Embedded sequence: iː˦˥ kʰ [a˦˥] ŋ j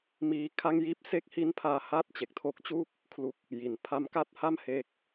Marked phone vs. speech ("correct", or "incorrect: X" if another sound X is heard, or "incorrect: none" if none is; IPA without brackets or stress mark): incorrect: a˥˩